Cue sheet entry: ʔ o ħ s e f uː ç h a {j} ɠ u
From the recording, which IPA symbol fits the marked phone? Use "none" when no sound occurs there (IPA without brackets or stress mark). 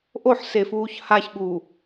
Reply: ç